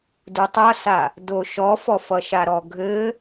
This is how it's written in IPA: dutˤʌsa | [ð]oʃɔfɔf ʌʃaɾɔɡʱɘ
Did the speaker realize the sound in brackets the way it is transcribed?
no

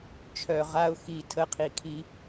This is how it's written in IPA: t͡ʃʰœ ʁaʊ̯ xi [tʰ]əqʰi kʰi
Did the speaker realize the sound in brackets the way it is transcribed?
yes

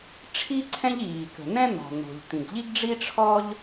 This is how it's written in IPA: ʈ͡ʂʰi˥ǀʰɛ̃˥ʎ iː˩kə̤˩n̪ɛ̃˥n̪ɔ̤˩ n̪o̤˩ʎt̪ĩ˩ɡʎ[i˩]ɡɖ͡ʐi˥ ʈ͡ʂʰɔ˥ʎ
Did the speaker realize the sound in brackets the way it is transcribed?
no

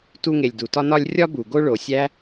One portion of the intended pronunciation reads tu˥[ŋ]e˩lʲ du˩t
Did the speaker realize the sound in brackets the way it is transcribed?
yes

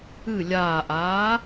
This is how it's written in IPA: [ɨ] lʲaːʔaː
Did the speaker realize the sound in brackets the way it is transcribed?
yes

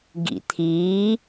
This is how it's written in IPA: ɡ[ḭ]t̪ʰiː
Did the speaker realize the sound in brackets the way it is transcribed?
yes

